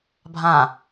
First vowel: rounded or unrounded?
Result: unrounded